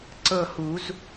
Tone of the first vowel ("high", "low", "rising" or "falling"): falling